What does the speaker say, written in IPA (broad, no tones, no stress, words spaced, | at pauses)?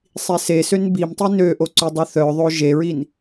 sˤisesøn bimtˤi nøʔoǀø dˤoθœðˤo ʒeɹin